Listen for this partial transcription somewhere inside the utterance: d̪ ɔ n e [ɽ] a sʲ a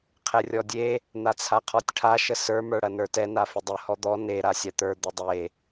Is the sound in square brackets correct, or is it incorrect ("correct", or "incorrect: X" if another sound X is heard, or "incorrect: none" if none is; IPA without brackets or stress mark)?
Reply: incorrect: ɾ